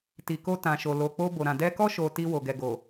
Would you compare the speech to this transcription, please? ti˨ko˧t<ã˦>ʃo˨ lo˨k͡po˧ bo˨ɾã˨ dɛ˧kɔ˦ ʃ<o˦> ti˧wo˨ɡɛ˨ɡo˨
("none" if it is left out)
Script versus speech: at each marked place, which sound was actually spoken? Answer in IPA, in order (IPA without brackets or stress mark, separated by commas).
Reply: ã˨, o˧